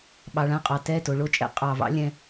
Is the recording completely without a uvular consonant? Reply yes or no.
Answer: no